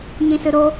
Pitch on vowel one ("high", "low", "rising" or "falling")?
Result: low